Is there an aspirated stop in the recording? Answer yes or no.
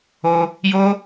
no